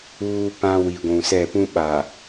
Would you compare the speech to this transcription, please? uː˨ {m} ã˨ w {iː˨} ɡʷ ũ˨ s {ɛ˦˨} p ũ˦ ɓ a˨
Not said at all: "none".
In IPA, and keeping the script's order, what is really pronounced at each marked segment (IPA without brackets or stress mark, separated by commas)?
p, i˨, ɛ˦˨